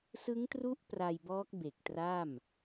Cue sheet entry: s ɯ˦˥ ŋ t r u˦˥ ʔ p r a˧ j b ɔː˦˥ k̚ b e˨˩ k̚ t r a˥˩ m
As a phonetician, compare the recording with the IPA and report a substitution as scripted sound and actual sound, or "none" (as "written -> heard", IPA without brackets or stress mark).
none